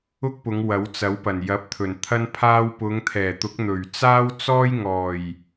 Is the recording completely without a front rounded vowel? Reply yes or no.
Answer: yes